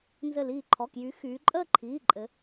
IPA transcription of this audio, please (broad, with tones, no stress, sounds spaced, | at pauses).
n z ɘ˧˩ l iː˧˩ ǃʰ ɔ˩˧˩ k j y˩˧ x yː˩˧ ǃʼ əː˥˧ ǃʰ iː˩˧˩ ǃʼ ɘ˩˧